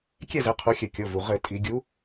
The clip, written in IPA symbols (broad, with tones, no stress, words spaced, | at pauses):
kʲɛ˥˨ zɛ˨˥qʰu˨˥xʲɘ˧˩˧kʲo˩˧˩ vu˩ ʁɘ˧˩˧ tʼi˧˩˧ɡʲu˨˥